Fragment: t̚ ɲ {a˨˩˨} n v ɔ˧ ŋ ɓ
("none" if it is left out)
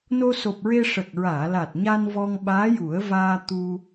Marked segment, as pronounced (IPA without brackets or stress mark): a˧